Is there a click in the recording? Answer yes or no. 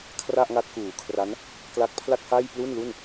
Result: no